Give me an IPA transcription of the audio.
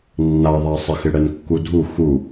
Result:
nː a ðˤ a sˤ ɪ x ɪ ɽ ɛ n kː u dʱ u x u

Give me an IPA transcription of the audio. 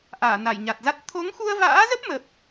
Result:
ʔ aː˧˩ n a˧˩ j ɲ a˨˩ t̚ z a˦˥ t̚ t̪ʰ o˨˦ ŋ x u˧ ə̯ v a̰ː˧˥ z ə˦˥ p̚ m ə˦˥ p̚

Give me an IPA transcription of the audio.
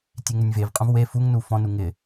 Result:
tʲ e ŋ ɘ nʲ v e v qʼ ũ v w e f u ŋ n u f ɔ̃ n u ŋ ɪ

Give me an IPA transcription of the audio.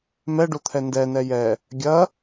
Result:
m ɛ ɖ o t̪ʰ ɛ n d ɛ n ɛ j ɛ | ɡʲ ɐ

